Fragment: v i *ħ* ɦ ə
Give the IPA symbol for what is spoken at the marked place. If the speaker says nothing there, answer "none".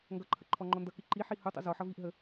ʔ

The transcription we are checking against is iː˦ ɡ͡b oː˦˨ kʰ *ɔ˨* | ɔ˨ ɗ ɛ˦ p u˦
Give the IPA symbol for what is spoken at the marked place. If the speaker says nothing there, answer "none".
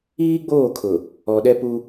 ʊ˨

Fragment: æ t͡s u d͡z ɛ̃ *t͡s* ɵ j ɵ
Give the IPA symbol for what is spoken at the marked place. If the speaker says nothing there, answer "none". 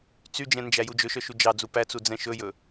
ʃ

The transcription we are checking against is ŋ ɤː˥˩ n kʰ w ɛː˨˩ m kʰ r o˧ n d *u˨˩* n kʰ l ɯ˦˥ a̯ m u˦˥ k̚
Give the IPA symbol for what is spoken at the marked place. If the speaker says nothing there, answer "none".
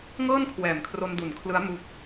u˨˩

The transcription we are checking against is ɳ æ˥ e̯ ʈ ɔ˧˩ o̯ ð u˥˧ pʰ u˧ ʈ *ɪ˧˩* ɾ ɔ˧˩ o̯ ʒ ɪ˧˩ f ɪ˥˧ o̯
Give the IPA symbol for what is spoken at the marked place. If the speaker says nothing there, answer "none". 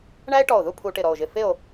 ɪ˧˩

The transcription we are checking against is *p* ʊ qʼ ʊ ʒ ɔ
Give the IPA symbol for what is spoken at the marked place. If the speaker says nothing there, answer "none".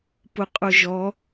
p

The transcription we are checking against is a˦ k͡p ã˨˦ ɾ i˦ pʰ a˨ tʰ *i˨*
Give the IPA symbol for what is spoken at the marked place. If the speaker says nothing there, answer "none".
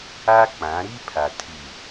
i˨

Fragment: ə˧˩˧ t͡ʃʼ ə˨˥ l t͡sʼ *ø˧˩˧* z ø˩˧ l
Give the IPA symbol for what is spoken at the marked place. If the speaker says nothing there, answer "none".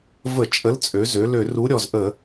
ø˩˧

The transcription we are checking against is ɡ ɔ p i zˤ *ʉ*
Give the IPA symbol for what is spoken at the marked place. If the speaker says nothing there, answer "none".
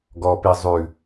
ʉ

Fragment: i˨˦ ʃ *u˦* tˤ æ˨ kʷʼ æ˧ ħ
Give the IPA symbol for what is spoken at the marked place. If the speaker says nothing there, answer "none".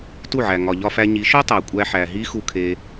o˦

